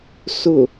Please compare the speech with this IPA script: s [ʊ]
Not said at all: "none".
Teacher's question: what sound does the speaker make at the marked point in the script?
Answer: ʊ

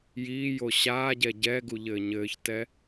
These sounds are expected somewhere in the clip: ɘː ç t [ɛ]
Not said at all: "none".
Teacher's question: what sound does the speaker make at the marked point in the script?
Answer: ɛ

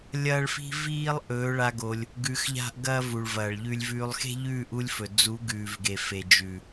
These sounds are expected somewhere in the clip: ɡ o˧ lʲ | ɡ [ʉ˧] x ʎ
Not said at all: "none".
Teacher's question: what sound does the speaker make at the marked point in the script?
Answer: ʉ˧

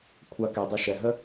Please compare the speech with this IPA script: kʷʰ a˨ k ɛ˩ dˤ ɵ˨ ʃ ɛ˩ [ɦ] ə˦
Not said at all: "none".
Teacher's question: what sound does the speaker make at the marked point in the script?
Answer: ɦ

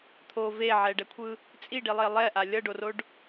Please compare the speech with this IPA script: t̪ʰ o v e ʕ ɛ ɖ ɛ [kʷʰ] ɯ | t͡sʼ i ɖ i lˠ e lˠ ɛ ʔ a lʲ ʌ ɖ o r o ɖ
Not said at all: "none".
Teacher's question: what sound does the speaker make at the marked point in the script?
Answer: kʷʰ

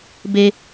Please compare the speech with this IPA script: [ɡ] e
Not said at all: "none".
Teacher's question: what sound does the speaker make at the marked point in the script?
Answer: b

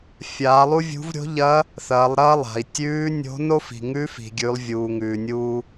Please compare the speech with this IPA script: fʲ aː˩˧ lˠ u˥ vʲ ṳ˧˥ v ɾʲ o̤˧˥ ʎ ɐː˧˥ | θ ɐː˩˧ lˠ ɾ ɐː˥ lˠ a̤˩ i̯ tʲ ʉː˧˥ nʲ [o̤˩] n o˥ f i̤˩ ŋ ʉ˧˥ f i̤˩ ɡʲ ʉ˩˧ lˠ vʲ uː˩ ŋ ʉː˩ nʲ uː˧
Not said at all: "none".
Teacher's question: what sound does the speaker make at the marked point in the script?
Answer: o̤˧˥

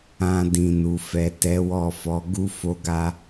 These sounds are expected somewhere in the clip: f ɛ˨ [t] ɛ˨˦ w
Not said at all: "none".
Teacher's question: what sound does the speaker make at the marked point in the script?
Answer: t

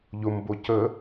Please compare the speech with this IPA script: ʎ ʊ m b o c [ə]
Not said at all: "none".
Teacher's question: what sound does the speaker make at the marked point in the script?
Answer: ə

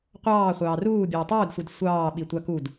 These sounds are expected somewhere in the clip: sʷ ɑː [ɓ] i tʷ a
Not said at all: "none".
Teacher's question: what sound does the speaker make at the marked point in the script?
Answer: ɓ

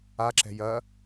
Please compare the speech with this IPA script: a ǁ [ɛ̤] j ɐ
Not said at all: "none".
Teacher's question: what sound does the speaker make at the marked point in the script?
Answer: ɛ̤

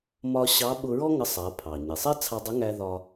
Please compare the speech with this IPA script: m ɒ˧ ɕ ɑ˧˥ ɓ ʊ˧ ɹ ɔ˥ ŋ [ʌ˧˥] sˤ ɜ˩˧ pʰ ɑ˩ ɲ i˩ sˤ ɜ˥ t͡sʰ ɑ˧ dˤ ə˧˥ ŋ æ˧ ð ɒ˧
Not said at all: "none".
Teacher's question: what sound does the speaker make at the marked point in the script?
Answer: ʌ˧˥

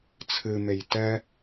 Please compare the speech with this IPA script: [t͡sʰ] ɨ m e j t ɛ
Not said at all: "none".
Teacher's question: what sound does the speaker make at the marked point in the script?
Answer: t͡sʰ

